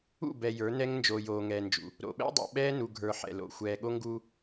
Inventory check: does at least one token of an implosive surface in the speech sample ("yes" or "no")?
yes